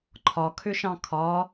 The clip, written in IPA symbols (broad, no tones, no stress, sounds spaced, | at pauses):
ǃʰ ɒ kʰ ʏ ʃ ɑ̃ kʰ ɒ